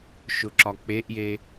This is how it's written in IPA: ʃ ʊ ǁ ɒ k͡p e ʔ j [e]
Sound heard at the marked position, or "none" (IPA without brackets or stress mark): e